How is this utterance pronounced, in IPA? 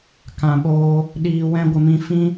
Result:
kã˨ɓoː˧ | ɗiː˨wɛ̃˧ɡʷə˨mĩ˧ fĩ˦

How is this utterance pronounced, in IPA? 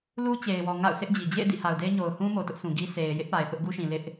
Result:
lu˦t͡ɕe˨ɪ̯wɔ˨ ŋa̰˦˨ʊ̯sɪ˦ʔd͡ʑi˨ d͡ʑḛ˦˨ɪ̯ dḭ˦˨ha˨ʊ̯de˦ɪ̯ ɲo˨ʊ̯ hũ˦ mo˨tʊ˦ʔsʰũ˨ ɡi˦ se˨ɪ̯ jɪ˦ʔ pa˨ɪ̯θʊ˦ʔ ɡu˦ʃĩ˨ lɪ˦ʔ

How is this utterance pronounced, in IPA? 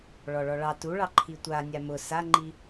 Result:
ɭɔɭɔɭɑ tuɭɑ ǃʰitʷa nʲamʊ saŋ͡ǃi

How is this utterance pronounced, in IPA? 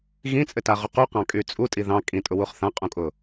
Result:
ɣĩt͡sʼɘtaʁu quqɑ̃kʼy t͡sʼutʼi ðɑ̃ kʼĩtʼʊwuχ θãqʼũkʼʊ

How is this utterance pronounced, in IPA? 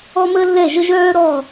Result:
ɔ˦məː˦lːɛ˦˨ʒə˦ ʒœː˦ɾɔ˦˨

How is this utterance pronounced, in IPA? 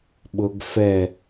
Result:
ɓʊɡ fɛ

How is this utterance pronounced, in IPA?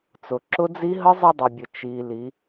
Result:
t͡sʊ˩ǁʊ˧˥d͡zi˧˥ ɦə˧˥zˤə˧ dˤə˩bʲə˩ t͡ʃi˩ li˩˧

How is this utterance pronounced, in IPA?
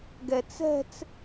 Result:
ɡɛt͡sɛ̤t͡s

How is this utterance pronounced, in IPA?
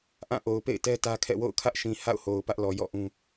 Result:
ʔã˦˨ʔo˨ʊ̯pḛ˦˨ɪ̯tɛ˦ tä˦kʰɛ̰˦˨ wo̰˦˨ʊ̯kʰä˦ʔʃĩ˨ ha̰˦˨ʊ̯ho˨ʊ̯ pä˦ʔlɔ˨ jɔ̰˦˨ ʔũ˦

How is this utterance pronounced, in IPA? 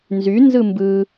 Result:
nzy nzɯmbɯ

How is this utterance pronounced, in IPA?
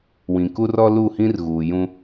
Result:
wĩ˨ku˦ rɔ˦lu˦˨hĩ˦r ɣuː˨jũ˦

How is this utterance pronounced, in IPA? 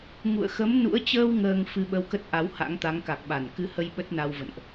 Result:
ŋṵ˧˨ə̯ xə˨˦mnṵ˧˥ə̯ t͡ɕəː˧w ŋəː˧ŋ fɨ˧ɓə˧wkə˦˥t̚ ʔa˨˦wha̰˧˥ŋt̪a˨˦ŋ ka˨˩k̚ɓa˧˩n kɨ˧hə˧j ɓə˦˥t̚na˧wvə̰˧˨nʔ

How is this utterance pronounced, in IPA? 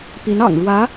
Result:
pi˧˥nɑ̰˨˩ŋɻwä˧˥

